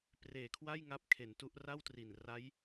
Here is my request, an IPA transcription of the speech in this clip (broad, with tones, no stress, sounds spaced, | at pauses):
p r eː˨˩ kʰ w a˥˩ j ŋ a˦˥ p̚ kʰ e˩˦ n t u˦˥ ʔ r a˥˩ w t r i˨˩ n r a˦˥ j